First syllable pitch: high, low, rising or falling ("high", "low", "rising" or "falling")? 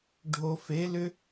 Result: low